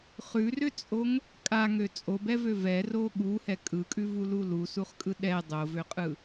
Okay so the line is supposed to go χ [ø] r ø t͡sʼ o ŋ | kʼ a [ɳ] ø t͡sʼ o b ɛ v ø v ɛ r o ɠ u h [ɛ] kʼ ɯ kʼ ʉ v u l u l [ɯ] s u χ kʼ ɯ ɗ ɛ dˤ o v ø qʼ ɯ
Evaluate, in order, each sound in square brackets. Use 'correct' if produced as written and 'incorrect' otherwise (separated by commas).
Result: incorrect, incorrect, correct, incorrect